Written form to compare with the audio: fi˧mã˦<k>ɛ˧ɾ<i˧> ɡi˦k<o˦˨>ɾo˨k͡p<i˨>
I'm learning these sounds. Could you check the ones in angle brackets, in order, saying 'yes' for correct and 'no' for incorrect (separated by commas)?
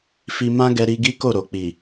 no, yes, yes, yes